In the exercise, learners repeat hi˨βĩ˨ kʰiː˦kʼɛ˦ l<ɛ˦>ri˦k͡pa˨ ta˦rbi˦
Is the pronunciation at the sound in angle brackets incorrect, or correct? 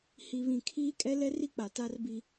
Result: correct